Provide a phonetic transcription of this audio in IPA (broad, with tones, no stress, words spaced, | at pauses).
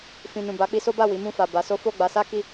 fĩ˨ nũ˨ba˨˦ k͡pi˧so˦ba˦˨ wi˨˦mũ˦˨ fa˨ba˨˦ so˦ fo˦˨ɡ͡ba˨˦sa˦ki˦˨